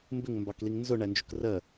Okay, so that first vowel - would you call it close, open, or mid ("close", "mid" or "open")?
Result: close